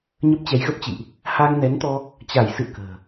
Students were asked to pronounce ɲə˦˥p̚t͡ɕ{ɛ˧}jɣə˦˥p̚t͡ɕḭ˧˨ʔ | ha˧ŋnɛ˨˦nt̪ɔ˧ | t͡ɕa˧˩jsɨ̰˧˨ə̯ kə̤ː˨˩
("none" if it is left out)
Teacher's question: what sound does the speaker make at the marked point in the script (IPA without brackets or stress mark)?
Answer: ɛ˨˦